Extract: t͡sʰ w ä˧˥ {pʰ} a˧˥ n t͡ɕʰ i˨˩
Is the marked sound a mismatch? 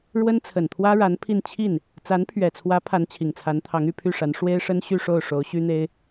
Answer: no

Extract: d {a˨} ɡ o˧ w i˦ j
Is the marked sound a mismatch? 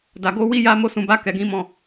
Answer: no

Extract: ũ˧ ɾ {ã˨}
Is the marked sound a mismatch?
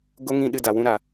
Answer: yes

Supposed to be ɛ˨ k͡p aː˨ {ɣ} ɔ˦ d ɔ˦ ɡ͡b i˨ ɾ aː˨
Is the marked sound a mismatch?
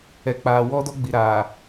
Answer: yes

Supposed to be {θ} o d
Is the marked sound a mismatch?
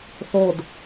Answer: no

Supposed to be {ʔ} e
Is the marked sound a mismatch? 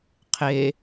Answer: yes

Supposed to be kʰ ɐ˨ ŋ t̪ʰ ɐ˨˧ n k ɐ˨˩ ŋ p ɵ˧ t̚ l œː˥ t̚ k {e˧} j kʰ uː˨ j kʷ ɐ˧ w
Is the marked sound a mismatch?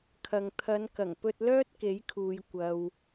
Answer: yes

